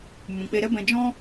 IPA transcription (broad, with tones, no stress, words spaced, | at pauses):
mũ˨k͡pe˧ɾɛ˦bɛ̃˧ d͡ʒɔ̃˦